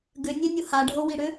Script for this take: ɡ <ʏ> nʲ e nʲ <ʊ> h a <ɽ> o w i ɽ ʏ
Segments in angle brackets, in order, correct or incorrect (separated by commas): correct, correct, incorrect